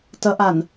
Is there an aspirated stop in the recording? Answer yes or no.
no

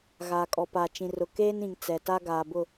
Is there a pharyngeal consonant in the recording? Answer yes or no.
no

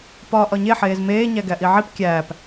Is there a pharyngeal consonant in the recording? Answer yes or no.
yes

